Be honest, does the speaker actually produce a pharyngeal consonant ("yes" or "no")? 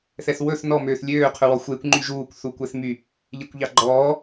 no